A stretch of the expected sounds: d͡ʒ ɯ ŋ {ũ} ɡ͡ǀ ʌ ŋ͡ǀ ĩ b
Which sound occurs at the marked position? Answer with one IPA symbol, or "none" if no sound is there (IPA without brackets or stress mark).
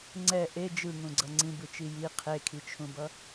ũ